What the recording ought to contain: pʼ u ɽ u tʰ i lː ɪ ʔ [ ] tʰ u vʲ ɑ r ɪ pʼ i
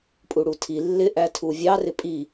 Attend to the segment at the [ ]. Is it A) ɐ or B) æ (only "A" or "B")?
B